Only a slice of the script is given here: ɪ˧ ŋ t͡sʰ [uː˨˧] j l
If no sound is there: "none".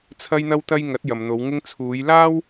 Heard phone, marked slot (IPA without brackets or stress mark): uː˨˧